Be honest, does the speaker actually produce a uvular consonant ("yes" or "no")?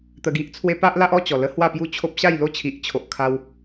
no